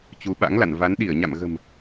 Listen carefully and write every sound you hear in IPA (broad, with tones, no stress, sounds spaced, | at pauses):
t͡ɕ u˨˦ ɓ a̰˧˥ ŋ l a̰˧˨ n v a˨˦ n ɗ i˧˩ ə̯ ɲ a̰˧˨ m ɣ ə̤˨˩ m